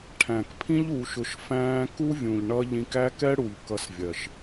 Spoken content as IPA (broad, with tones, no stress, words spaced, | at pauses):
ʈʰæ̃˨kpʰĩ˦ʎ u˧ʃʊ˧ʃfæ̃ː˦ ku˦vʲũ˨ʎ ɳʌ˦ ʎĩ˧kæ˦kɛ˦ɽu˨ʎ kʌ˧svʲɜ˨ʃ